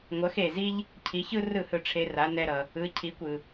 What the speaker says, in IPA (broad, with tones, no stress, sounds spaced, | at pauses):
ŋʷ ʌ˩˥ x e˩ z i˥ ʎ | cʰ i˩˥ ç ɯ˥ r ɯ˥˩ h ɯ˧ ʈ͡ʂʰ e˧ r a˩˥ n ɛ˧ ɾ ʌ˩ | ɯ˩˥ cʰ i˩˥ kʷ ɯ˩